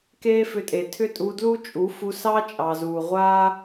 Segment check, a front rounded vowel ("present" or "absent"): present